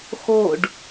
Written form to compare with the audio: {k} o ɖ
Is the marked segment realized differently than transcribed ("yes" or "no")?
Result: yes